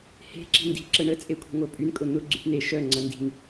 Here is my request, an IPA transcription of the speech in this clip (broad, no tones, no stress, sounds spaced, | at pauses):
h e̤ ǁ i̤ n d i̤ ǁ ə ɳ ə t͡sʼ e kʷʰ i̤ ŋʷ œ pʼ y n kʼ ʊ n̪ ʊ ɡ͡ǀ y p n̪ e ʃ œ ŋ͡ǀ ɐ n d i̤ ŋ